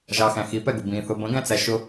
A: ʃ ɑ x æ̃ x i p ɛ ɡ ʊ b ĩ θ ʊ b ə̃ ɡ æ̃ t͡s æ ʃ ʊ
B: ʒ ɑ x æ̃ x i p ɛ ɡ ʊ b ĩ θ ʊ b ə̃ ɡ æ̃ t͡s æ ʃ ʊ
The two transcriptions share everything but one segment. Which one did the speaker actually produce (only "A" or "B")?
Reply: B